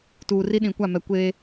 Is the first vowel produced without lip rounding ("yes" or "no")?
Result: no